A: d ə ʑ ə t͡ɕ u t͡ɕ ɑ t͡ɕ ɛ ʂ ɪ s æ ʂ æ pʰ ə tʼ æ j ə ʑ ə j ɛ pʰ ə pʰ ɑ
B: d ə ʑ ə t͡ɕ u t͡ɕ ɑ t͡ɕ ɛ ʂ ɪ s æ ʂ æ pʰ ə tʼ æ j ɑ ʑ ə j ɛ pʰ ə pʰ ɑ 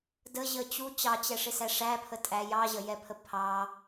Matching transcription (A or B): B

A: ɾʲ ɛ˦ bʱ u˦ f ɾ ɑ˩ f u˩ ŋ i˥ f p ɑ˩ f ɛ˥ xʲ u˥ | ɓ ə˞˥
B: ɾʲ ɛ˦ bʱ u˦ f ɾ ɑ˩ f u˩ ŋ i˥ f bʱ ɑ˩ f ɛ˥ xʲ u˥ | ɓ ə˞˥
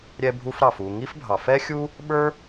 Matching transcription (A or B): B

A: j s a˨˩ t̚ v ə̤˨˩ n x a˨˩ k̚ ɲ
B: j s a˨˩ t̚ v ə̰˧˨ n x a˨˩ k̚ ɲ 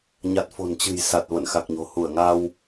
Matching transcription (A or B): B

